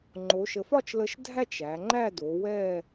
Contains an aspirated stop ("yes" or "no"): no